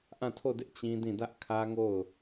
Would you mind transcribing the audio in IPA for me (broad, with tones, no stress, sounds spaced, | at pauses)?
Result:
ʔ ã˦˨ tʰ o˦˨ d ɪ˦ ʔ t͡ɕ ĩ˦ d ĩ˦˨ d ä˦ ʔ kʰ ä˦ ŋ o˦˨ ʊ̯